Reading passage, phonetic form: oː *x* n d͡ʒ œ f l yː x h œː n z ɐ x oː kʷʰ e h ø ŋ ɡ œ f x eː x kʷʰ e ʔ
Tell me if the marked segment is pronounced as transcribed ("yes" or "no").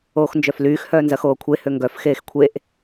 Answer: yes